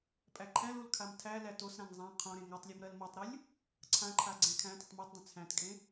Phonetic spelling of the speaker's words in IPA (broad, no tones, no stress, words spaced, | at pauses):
pʼæǃʰæ̃lul kʰamtʰælæ tosɾãŋ zˤã qʰõɾẽ ŋatˤlʲom ɾɜlmɜtˤɾulʲ | ǀʰãǃʰa ɡ͡ǀæ̃kʰæ̃tətˤ mɜtdˤə̃ t͡sʰæ̃tkʼẽ